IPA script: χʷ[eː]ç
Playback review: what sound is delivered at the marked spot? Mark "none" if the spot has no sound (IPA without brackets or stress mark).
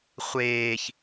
eː